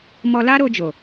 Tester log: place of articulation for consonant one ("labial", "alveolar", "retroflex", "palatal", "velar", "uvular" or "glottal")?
labial